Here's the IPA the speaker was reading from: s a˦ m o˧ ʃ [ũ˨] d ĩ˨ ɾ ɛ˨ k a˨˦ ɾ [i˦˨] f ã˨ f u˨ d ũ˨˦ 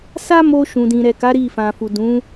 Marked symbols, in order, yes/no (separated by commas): yes, yes